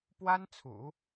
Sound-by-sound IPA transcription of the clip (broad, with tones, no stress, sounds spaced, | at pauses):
p w a˥ n t͡sʰ ṵ˨˩˦